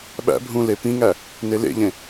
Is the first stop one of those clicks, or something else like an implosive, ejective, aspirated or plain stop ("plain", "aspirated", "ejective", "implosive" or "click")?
implosive